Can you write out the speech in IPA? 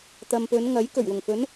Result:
t̪ ɐ˨ m p ɵ˨˧ n ŋ ɐ˨˥ j k ɵ˨˩ ɥ w ʊ˨˩ ŋ f ɵ˨˧ n

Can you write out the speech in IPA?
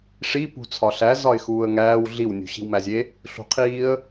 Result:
ʂ i p ṳ t͡sʰ ɒ ɬ æ z ɒ ɪ̯ x uː ə̯ ŋ æː w ɮ i w nʲ ṳ ɕ i̤ w m æ zʲ e | ɬ ṳ qʰ iː ə̯

